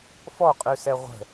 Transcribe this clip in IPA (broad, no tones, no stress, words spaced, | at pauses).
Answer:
fɔqʼʉsɛ ʁʷə̤